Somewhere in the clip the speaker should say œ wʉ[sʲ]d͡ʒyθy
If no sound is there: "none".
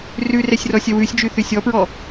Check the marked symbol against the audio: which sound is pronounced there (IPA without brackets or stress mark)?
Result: sʲ